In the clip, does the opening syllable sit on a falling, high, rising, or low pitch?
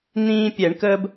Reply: high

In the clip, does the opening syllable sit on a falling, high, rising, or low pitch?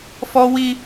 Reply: high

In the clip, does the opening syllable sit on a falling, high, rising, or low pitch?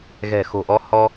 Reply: low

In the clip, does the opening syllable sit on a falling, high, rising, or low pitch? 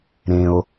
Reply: low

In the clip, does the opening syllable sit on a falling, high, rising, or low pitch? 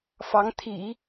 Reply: rising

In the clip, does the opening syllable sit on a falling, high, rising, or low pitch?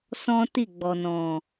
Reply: high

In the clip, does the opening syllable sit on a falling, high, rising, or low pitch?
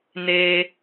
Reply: high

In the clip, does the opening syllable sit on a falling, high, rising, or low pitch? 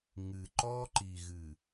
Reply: low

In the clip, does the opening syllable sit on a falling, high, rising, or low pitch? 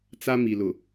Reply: high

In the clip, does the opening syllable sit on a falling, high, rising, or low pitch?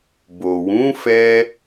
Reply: low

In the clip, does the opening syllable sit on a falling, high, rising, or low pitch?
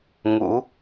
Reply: rising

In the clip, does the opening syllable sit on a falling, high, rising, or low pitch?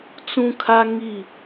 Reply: high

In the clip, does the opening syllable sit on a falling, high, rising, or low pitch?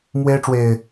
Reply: high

